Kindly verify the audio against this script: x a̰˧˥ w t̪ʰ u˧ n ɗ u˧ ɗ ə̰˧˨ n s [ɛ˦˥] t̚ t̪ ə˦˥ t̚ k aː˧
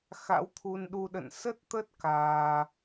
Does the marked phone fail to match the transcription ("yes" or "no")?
yes